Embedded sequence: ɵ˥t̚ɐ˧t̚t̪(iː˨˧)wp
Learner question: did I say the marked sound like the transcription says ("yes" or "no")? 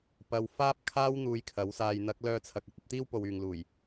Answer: no